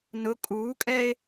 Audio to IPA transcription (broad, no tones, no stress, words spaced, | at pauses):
nʊ kʼuːkʼɛe̯